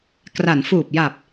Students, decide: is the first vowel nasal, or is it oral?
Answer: oral